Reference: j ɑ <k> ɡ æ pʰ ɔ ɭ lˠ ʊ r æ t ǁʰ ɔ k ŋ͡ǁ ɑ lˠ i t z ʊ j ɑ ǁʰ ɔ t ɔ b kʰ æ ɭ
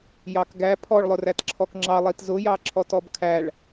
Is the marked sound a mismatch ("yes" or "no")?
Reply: no